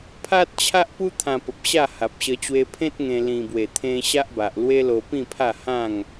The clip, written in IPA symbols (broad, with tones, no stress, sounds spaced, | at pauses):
pʰ a˦ t̚ t͡ɕʰ a˦ ʔ p u˦ t̪ʰ ã˧ p ə˨ p̚ ɕ a˥˧ h a˨ p̚ ɕ ə˧ t͡ɕ w e˧ pʰ ẽ˦ t̚ ŋ ẽ˧ l ĩ˨˩ b w e˨˩ t̪ʰ ẽ˧ ɕ a˦ ʔ b a˨ ʔ l w e˦ l o˧ p ĩ˥˧ pʰ a˥˧ h ã˥˧ ŋ